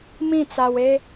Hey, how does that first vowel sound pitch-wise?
falling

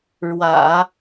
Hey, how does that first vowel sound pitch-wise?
low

